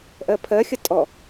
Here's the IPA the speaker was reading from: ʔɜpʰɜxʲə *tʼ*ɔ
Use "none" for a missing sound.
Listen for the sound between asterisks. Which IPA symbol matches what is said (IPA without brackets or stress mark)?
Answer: tʼ